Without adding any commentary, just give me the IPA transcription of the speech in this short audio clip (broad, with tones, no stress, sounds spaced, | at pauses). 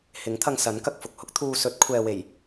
h ɪ˨˥ ŋ t̪ʰ ɐ˧ ŋ s ɐ˨˥ n k ɐ˧ k̚ f ʊ˨ k̚ h ʊ˥ k̚ t̪ʰ uː˧ s ɵ˨˥ t̚ kʷʰ ɛː˨ w e˨˩ j